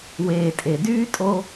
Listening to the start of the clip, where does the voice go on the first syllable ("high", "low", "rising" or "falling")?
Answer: low